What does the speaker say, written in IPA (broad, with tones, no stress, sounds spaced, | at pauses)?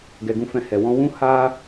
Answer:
ɡ ɛ˨ ɡ ũ˧ f ɛ̃˧ h ɛ˨ w ɔ̃˧ w ũ˦ h a˦